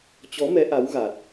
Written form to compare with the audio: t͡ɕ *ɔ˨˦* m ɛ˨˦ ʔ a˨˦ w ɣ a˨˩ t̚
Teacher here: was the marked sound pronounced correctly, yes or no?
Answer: yes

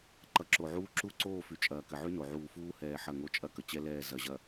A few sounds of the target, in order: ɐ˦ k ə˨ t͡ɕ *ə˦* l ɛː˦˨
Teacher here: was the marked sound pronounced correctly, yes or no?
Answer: no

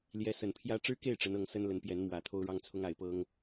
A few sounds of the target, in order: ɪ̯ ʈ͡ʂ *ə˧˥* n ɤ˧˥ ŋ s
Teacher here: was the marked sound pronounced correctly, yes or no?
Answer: yes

